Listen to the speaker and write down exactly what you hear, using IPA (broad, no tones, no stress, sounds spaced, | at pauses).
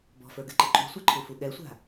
b ɔ̤ f ə˞ ɡ ɨ ǃ ɨ ǃʼ ṳ sʷ ɛ ǃʰ u f u ɠ ɛ sʷ a̤